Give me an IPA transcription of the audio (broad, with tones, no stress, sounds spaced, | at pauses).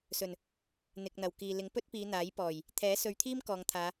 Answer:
s ɵ˨˩ n | n̪ ɪ˨ k̚ n̪ ɐ˨˩ w k iː˨ l ɪ˨˥ ŋ p ɵ˥ t̚ p iː˨˧ n̪ aː˨˥ j p ɔː˨˩ j | t̪ʰ ɛː˨˥ s ɵ˨˧ ɥ t̪ʰ iː˥ m k ɔː˨ ŋ t̪ʰ aː˨˧